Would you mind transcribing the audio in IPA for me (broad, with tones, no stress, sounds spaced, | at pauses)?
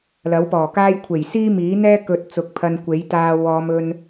l ɐ˨˥ w p ɔː˨˩ k aː˥ j kʷʰ e˨˩ j s iː˥ m iː˨˥ n̪ ɛː˥ k ɵ˧ t̚ t͡s ʊ˨˥ k̚ pʰ ɐ˧ n kʷ e˨˥ j t̪ aː˧ w ɔː˨˧ m ɵ˧ n